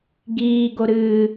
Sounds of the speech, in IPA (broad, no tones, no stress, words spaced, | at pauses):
ɡiː ɡoɾɨː